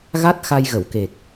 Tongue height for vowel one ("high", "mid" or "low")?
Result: low